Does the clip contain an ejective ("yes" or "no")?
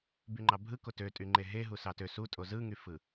yes